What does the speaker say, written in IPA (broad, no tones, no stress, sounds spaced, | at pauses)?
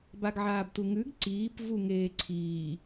b a ɡ ʕ aː b t u ŋ ʉ ɡ ǀ iː p v u ŋ eː ǀʰ iː